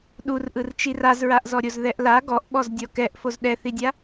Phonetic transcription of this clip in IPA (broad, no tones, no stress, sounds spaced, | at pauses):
ɗ u r ʔ ɯ r t͡ʃ i r a z ɹ a ʔ z ɔ ɾʲ o z ð ɛ ʔ l a ɡ ɔ ʔ ɓ ɔ z dʲ ɔ k ɛ ʔ f o z ɗ ɛ θ i dʲ a